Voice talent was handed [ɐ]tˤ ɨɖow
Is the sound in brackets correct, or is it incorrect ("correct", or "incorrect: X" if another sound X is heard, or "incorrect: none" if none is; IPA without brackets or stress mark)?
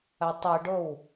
correct